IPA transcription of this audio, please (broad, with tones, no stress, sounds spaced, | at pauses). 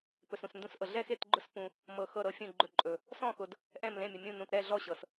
p ɵ˧ s ũ˧ s n d ũ˥˧ s ʔ ɤ˧ ɮ ɛ˥˧ x e˥˧ t ɡ͡ǃ ʊ˥˧ s p ũ˧ | m ɤ˧ x ɤ˥˧ ɾ ɤ˥˧ fʲ ũ˥˧ ɡ͡ǃ ɵ˥˧ ǃʼ ɵ˧ | s ɔ̃˥˧ x ʊ˧ d | ʔ ɛ̃˥˧ m l ẽ˥˧ mʲ ʊ˧ mʲ ũ˥˧ n ũ˧ t ɾ ɛ˥˧ ɮ ɔ˥˧ ɕ ɤ˧ s